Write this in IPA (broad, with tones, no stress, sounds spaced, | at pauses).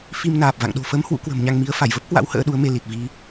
f i˧ m n aː˨˩ p̚ v a̰˧˨ ŋ ɗ o̤˨˩ f əː˨˦ m h w ṵ˧˥ k w ə̤˨˩ m ɲ a˧ ŋ m i˨˦ ə̯ f a˧˩ j v ə˦˥ p̚ k w a̰˧˥ w h ə̰ː˧˥ ɗ u˨˦ ə̯ m e˧ l i˨˩ t̚ v i˧